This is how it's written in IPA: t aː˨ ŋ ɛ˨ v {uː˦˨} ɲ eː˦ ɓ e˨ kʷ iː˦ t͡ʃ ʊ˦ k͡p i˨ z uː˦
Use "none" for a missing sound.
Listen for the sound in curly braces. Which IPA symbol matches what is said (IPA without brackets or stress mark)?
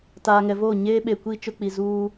oː˦˨